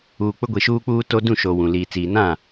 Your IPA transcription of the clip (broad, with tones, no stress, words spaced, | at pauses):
uː˨k͡pʊ˦ ɡʷi˨ʃuː˦k͡puː˦to˦ dũ˦˨ʃo˨ wũ˨ liː˨ t͡siː˨nã˦˨